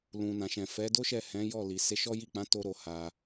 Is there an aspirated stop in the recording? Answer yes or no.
no